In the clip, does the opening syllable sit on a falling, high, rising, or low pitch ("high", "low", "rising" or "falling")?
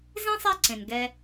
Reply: high